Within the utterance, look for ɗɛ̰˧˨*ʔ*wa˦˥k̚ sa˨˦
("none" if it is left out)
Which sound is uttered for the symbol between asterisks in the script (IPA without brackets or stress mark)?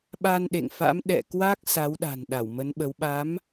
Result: k